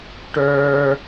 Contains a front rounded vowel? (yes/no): yes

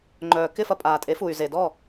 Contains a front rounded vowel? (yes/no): yes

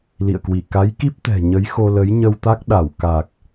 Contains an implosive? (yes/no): yes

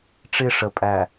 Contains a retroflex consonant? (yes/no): yes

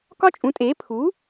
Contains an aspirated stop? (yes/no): yes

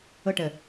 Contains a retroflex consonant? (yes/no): yes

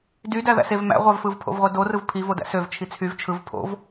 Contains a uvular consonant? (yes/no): yes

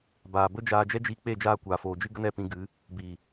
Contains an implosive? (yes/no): no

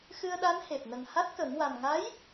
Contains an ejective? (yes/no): no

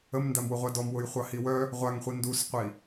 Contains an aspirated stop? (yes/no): no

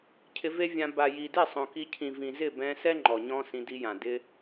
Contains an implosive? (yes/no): no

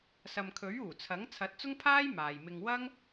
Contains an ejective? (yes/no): no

